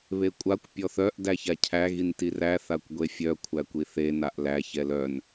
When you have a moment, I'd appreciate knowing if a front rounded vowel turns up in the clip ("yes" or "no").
yes